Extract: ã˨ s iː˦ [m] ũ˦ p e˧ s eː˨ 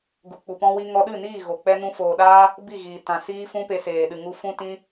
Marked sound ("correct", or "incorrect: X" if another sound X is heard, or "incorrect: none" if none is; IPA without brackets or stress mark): incorrect: f